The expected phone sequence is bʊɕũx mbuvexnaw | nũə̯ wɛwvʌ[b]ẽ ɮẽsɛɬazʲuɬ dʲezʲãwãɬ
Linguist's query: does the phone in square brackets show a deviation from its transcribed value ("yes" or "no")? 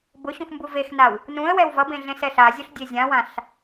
no